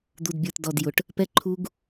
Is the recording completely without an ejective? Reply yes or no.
yes